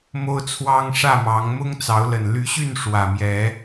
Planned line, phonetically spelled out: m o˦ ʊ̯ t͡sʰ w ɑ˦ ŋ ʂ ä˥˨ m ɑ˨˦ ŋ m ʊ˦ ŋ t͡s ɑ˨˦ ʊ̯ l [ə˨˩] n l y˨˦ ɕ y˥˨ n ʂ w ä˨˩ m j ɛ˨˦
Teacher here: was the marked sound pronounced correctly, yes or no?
yes